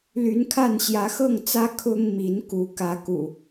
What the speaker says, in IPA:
l y˨˦ n kʰ a˥˨ n ɕ j ä˨˦ x ɤ˥˨ ŋ t͡s ä˦ kʰ ʊ˦ ŋ m i˨˦ n k u˨˦ k ä˨˦ k ṵ˨˩

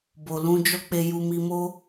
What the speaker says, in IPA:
b o˨ l ũ˧ d͡ʒ ɔ˦ k͡p e˧ j u˧ m i˧ m o˦

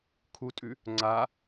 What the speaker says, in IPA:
kʰ u tʼ ʉ | ŋ͡ǀ a

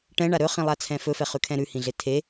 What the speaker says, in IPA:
ʈ ɛ̃ ɳ a ɾ ɵ χ ĩ lˠ a t͡sʰ ɛ̃ f ɵ f ɛ χ ʉ kʰ ɛ̃ ɾ ʉ h ĩ ɮ e tʰ e

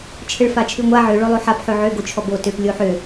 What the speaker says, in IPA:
t͡ʃʰ ɘ ɭ f a t͡ʃʰ ʉ ŋʷ a ʕ ø ɭ o lˠ o ħ a p ħ ø ʕ ø ɡ o t͡ʃʰ ɔ b o t ø p lʲ o ħ ø

